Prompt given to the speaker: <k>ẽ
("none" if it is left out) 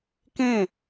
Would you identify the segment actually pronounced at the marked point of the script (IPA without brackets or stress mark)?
k